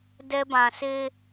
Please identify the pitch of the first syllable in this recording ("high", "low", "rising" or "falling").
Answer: high